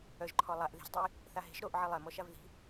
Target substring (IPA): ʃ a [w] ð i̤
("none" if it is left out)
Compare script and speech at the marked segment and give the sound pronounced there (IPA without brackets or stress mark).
v